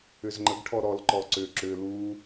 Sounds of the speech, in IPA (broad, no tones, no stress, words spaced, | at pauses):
ʏzŋ͡ǃəɡ ʈʰɔɾɔl ǃɔǀʏ ǁʏ lu